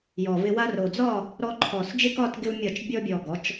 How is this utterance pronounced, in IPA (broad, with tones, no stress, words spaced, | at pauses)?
jɔ˨˩vɪ˧ wa˧ro˨˩d͡zɒ˥˨ | ɾɔ˧ ǃʰɔ˨˩sd͡ʒɪ˥˨kɒ˥˨t ɡɪ˧wmʲɒ˧˩˧t͡ʃ bʲɔ˧bʲɔ˨˩ɡɔ˩˧t͡ʃ